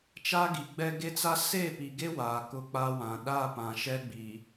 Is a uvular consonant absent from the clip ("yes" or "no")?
yes